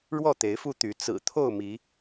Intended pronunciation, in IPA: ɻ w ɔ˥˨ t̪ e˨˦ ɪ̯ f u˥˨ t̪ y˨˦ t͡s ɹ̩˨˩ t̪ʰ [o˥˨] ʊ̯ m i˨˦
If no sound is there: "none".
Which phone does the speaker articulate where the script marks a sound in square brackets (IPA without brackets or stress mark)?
o˥˨